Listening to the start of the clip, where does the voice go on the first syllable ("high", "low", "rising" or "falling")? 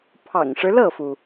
low